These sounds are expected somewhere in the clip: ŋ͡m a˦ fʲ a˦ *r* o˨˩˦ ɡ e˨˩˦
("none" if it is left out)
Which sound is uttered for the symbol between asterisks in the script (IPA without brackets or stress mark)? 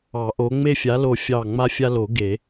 l